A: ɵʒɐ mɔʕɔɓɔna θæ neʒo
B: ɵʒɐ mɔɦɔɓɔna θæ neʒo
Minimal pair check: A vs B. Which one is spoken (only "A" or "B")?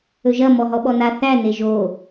B